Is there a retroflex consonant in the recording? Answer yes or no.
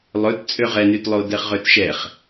no